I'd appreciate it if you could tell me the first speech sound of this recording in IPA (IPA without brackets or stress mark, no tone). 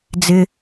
d͡z